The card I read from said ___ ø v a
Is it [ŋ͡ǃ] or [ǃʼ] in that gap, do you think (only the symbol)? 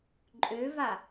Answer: ǃʼ